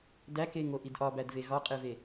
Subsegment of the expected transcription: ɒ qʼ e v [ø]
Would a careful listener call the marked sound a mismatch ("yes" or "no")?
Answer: yes